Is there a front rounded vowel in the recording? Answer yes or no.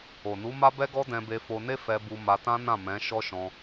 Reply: no